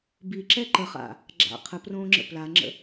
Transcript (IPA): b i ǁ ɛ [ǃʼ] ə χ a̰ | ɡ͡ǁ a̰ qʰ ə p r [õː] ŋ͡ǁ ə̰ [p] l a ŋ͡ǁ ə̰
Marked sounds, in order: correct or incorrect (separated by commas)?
incorrect, correct, correct